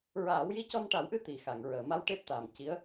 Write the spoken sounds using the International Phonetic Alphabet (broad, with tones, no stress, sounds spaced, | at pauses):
ɹ aː˨˩˦ w j i˧ c ɔ˧ n ʈ a˨˩˦ w ʔ ɨ˧ t̪ i˨˩ x a˨˩˨ ŋ ɹ əː˨˩˨ m a˧ w ʈ e˦˥ p̚ t̪ aː˨˩ m c i˧˥ ə̯